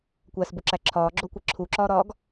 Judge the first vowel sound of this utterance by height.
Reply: low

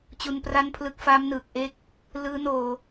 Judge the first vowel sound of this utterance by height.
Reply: high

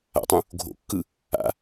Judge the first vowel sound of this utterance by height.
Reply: low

